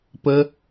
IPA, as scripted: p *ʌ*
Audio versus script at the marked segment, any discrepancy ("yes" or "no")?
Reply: yes